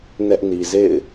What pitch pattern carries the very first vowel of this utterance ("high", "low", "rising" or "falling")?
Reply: high